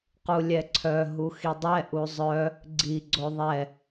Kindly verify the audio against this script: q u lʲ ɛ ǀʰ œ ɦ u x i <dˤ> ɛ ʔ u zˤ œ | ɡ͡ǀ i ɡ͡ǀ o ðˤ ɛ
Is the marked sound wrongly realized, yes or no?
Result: no